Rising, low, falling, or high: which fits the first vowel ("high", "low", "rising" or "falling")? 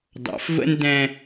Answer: low